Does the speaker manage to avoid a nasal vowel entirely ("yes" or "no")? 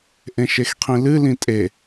no